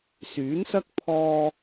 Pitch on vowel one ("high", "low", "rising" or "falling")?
rising